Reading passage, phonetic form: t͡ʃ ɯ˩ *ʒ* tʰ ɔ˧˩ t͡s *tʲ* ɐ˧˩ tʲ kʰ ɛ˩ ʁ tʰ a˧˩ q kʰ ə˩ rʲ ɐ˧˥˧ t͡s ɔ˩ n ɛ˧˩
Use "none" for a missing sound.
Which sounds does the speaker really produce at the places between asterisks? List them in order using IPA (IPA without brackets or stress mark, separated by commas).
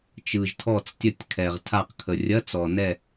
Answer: ʒ, tʲ